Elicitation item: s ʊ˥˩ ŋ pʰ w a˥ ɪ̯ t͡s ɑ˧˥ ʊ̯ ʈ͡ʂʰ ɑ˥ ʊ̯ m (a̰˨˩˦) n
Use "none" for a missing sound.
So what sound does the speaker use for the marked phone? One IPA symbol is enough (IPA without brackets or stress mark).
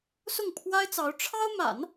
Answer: a̰˨˩˦